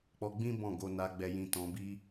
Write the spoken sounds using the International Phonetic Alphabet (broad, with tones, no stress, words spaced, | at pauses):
k͡pɔ˧ɡ͡bĩ˦ bɔ̃˦˨ɡo˧na˧ ɡ͡bɛ˨jĩ˨ tɔ̃˧bi˦